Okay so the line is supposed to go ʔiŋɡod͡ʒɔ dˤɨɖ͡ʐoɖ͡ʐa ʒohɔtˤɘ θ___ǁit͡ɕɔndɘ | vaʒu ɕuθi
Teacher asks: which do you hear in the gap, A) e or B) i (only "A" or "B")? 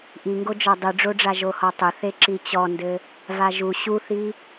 A